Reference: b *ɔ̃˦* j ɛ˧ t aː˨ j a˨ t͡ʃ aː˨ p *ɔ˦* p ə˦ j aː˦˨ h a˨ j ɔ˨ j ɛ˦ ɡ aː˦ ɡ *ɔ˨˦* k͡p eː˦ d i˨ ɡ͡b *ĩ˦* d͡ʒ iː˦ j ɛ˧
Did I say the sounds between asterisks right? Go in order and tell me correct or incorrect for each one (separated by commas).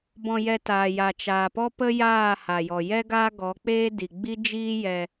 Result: incorrect, correct, correct, incorrect